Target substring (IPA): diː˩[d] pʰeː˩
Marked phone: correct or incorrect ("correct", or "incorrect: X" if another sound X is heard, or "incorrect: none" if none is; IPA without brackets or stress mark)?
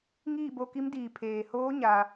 incorrect: none